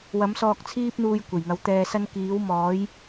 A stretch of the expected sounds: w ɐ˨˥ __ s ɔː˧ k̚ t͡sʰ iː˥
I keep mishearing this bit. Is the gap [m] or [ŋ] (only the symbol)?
m